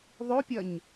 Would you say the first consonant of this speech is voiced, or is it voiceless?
voiced